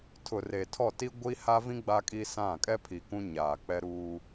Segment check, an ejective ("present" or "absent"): present